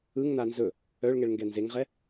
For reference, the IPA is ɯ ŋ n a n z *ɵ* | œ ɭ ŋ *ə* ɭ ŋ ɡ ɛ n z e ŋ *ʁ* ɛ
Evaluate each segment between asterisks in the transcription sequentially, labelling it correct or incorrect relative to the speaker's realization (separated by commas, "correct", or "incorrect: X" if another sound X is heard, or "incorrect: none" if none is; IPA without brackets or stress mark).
correct, incorrect: ɛ, correct